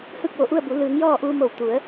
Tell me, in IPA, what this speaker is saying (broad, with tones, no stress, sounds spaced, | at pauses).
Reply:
h ɯː˥˨ k̚ ʋ o˧˩ ʔ u˥˨ ə̯ b u˩˧ l ɯː˩˧ ŋ j ɔː˥˨ ʔ uː˧ m o˧˩ w t̪ u˩˧ ə̯